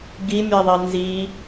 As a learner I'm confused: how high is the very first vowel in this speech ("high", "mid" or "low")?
high